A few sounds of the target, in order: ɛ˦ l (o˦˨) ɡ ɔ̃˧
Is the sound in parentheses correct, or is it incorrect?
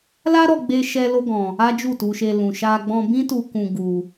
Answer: incorrect